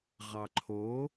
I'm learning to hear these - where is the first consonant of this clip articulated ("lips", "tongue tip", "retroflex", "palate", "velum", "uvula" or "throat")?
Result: uvula